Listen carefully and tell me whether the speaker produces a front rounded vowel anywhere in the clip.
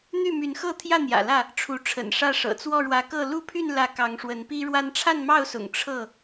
yes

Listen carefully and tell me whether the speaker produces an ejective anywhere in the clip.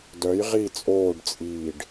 yes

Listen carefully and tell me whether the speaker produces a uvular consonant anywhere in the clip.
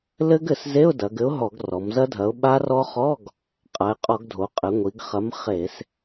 yes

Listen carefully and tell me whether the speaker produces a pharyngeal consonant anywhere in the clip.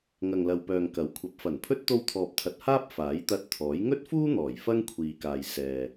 no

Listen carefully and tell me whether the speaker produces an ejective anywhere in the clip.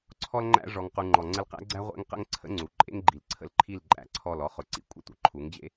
yes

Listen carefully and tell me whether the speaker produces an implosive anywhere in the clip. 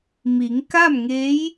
no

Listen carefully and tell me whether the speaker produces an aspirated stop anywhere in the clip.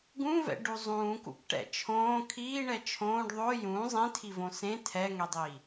yes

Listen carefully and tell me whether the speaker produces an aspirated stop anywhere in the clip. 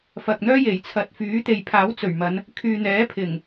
yes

